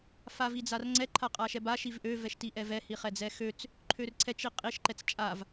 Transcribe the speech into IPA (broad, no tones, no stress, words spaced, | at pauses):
favid͡zarŋ͡ǀɛ ǃʰaqʼaʃɛba ʃivʔø vɛʃtiʔɛvɛ hiχɛd͡zɛxøt͡s | ǃʰørǀʰɛ t͡ʃiqʼiʃ ǃɛt͡st͡ʃʼav